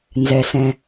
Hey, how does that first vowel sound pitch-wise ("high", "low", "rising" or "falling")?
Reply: low